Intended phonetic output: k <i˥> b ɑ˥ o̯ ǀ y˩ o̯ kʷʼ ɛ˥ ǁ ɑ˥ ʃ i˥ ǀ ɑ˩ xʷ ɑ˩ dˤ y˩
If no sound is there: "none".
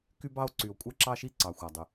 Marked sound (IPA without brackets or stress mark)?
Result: y˥